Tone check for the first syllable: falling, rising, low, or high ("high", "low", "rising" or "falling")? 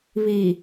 low